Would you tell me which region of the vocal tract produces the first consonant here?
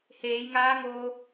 throat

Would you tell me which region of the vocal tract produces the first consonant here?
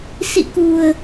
tongue tip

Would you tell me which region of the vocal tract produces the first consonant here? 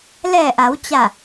tongue tip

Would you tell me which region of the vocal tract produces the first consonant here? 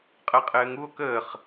uvula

